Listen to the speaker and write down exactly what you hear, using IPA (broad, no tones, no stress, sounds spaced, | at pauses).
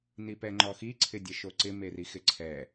n i p ɛ ŋ͡ǃ ɔ x i ǀʰ ɪ dʲ ɛ ʃ o ǀ ɪ m e r i x ɪ ǀʰ ɛ